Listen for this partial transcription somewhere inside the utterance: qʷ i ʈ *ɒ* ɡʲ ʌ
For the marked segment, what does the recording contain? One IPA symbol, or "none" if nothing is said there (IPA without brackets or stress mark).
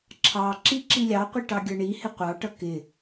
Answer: ɑ